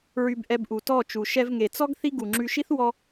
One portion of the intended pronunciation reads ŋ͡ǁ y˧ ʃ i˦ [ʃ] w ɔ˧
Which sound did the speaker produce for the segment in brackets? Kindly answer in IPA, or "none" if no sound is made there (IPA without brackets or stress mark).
θ